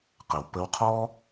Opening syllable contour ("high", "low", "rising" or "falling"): low